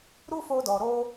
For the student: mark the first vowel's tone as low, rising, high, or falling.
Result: high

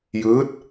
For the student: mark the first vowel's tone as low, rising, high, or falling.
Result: rising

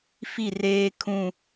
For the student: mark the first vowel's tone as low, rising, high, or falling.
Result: falling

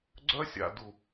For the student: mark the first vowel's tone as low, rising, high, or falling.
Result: high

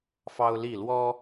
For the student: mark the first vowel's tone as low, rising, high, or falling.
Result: high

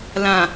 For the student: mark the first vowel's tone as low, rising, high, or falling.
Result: low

